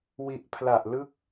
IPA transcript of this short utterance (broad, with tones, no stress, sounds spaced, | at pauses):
w i˨˩ ʔ pʰ l a˨˩ ʔ l ɯ˥˩ k̚